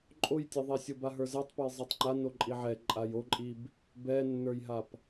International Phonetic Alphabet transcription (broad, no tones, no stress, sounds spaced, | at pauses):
ǃʼ o j tʲ e ðˤ e sʲ o b a ɦ ə˞ z ɛ tˤ p ɛ j zˤ ɛ tˤ ŋ͡ǃ a n o ǃʼ i ʕ ɛ ǃʼ a j o ǃʼ i b | b ɛ nː ə˞ j ɦ a p